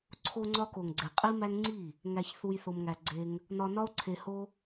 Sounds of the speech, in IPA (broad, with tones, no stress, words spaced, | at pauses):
ǀʰo˧ŋ͡ǀɒ˧ko˨ŋɡ͡ǀe˨ qʼi˦mæ˦ŋ ŋ͡ǀi˦˨ | ŋæ˧çθu˧j θo˧mŋæ˧ɡ͡ǀe˦ŋ | nɒ˧nɒ˦o̯ǀʰe˧ho˦